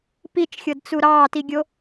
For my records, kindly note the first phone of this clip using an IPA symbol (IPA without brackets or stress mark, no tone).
p